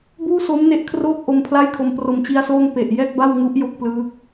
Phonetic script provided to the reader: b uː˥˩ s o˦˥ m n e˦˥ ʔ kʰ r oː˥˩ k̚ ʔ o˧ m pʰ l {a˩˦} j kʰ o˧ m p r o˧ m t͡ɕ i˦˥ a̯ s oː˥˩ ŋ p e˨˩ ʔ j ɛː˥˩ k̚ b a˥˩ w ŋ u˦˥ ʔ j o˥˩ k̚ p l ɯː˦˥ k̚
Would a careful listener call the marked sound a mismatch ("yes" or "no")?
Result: yes